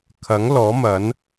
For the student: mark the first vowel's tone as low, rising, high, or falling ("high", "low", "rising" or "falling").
rising